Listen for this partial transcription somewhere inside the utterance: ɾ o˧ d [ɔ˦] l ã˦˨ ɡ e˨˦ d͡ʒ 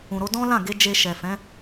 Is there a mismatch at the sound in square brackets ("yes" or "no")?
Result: yes